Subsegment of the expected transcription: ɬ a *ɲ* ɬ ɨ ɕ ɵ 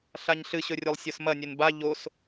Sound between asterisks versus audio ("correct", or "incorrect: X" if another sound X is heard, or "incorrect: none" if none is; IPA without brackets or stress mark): correct